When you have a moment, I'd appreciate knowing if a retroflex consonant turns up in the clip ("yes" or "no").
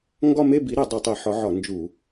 no